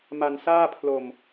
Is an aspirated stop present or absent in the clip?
present